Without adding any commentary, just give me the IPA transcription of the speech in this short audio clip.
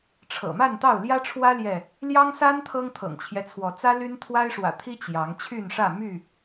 ʈ͡ʂʰ ɤ̰˨˩ m a˥˨ n t̪ ɑ˥˨ ʊ̯ l j ä˦ ʈ͡ʂʰ w ä˦ l j ɛ˥˨ | l j ɑ˦ ŋ s a˦ n t̪ʰ ɤ˦ ŋ t̪ʰ ɤ̰˨˩ ŋ t͡ɕʰ j ɛ˦ t͡sʰ w ɔ˨˦ t͡s ä˦ l y˦ n t̪ʰ w a˦ ɪ̯ ʂ w ä̰˨˩ t̪ʰ i˦ t͡ɕ j ɑ˨˦ ŋ t͡ɕʰ y˥˨ n ʂ ä˥˨ m y˥˨

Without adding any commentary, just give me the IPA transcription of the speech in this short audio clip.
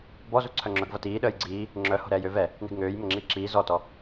b ɔ z u ǀʰ œ ŋ͡ǁ œ ɡ v ʌ t iː ɗ əː j ɡ͡ǀ iː | ŋ͡ǁ œ h o̤ ɾ ɛː j ø v ɛ | n ɛ̤ ɡ ŋ øː j m ə ŋ͡ǁ iː ǁ iː z ɔ t ɔ

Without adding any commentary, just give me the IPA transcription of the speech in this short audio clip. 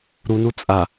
ɾ u n u t͡sʼ a

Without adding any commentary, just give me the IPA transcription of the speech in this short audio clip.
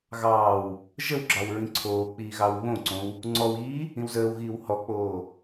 ɣ ɑː w | ʒ ə w ɡ͡ǁ ɑ w ɹ ĩ ǀʰ oː k͡p iː ɣ ɑ w β õ ǀ õ w | ŋ͡ǀ ɔ w iː | ĩ w z əː w ɣ iː w h ɔ k͡p oː

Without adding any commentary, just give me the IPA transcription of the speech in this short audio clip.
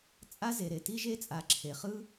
t͡sʼ a˦ z e˨ ɾ e˨ t i˦ ʒ e˦ t͡sʼ a˨ ǁʰ e˨ χ ɯ˦

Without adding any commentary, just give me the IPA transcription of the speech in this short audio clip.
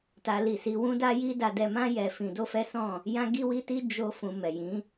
t a˦ l i˦˨ s i˧ w ũ˦ d a˦ j i˦ d a˧ d ɛ˧ m ã˦ j ɛ˧ f ĩ˧ d o˦ f ɛ˦ s ɔ̃˦˨ | j ã˦ ɡ i˦ w i˦ t i˦ d͡ʒ o˦ f ũ˧ m ɛ˨ j ĩ˨˦

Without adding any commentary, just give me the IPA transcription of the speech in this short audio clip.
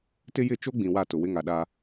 t ɪ˦ j ɪ˦˨ t͡ʃ o˦ ɡ͡b ĩ˨ w a˦˨ t ʊ˨ w ɪ˦ ŋ a˨ ɗ a˦

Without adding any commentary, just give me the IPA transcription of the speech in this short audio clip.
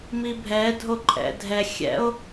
m i bʱ ɛ dʱ o ǃʼ ɛ̰ dʱ ɛ xʲ ɛ̰ o̯

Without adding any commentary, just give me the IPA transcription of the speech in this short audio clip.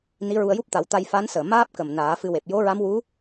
n i˧˥ ɹ u˧ ə̯ j u˦˥ p̚ t̪ a˨˩˦ w t̪ a˧ j f a˧˥ n s əː˨˩ m aː˦˥ p̚ k ə˨˩ m n aː˨˩˦ f ɨ˧ w e˨˩ p̚ j o˧˥ ɹ a˧˥ m w u˧˥

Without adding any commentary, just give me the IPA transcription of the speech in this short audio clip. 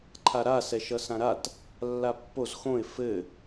ǃʰ a ɾ a s ɛ ʃ ʌ s ã ɾ a t | lː a pː o z x õ ɪ̯ f ɘ

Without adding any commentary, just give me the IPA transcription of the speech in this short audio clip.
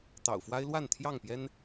t̪ ɑ̰˨˩ ʊ̯ f w a˦ ɪ̯ l w a˥˨ n t̪ʰ j ɑ˥˨ ŋ p j ɛ˦ n

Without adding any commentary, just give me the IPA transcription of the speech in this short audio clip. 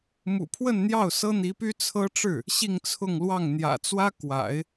m ṵ˨˩ pʰ w ə˥˧ n n̪ j ɑ˥˩ ʊ̯ s ɤ˥ n̪ i˧˥ p y˥ t͡sʰ ɤ˥ ʈ͡ʂ ɻ̩˥˩ | ɕ i˥˧ ŋ t͡sʰ ʊ˥˧ ŋ l w ɑ˥˩ ŋ n̪ j ä̰˨˩ t͡s w ä˥ k w a̰˨˩˦ ɪ̯

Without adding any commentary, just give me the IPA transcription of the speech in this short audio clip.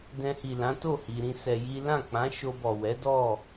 d ɛ̃˧ h i˨ l ã˨˦ t o˦˨ h i˧ ɾ ĩ˦ s ɛ˧ j i˦ l ã˦˨ k͡p ã˨˦ ʃ o˧ b ɔ˨ w ɛ˨˦ d ɔ˦˨

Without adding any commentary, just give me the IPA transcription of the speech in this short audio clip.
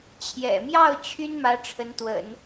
t͡ɕʰ j ɛ̰˨˩ m j ɑ˥˩ ʊ̯ t͡ɕʰ y˥ n m ä˧˥ ʈ͡ʂʰ ə˧˥ n t̪ w ə̰˨˩˦ n

